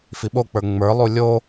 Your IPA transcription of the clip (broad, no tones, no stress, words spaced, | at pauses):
fiɓok͡pə˞ ŋ͡mə˞lˠu lʲo